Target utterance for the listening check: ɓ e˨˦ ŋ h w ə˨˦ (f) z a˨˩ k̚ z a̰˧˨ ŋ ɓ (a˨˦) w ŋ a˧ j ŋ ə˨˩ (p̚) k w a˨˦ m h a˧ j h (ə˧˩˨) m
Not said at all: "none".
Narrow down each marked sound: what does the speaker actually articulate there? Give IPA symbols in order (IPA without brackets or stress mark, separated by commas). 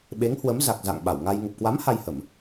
m, a˧˩, p̚, ə˧˩˨